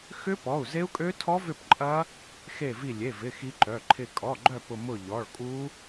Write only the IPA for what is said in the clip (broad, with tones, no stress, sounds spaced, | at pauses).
x ʏ˦˥ p ɔ˩˧˩ u̯ z e˦˥ u̯ kʼ ø˦˥ tʰ ɔ˦˥ v ʏ˦˨ p ǃʼ ɐ˦˥ | x e˦˨ v i˦˨ lʲ e˩˧˩ v ɪ˩˧˩ x i˦˥ ǃ œ˩˧˩ ǃʰ ɪ˦˨ kʼ ɔ˩˧˩ ɡ͡ǃ œ˦˨ p ʊ˦˨ m ʊ˦˨ ʎ ɔ˩˧˩ ɭ kʼ u˦˥